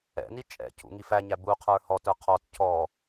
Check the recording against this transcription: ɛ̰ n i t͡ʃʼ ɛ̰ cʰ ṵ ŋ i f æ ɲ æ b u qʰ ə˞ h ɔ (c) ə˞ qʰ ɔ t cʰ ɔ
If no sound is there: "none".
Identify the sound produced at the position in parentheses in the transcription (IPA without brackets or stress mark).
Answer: t